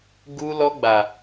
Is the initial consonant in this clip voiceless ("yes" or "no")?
no